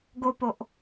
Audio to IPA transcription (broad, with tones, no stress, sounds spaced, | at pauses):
ɡ o˨ p o˨ ʔ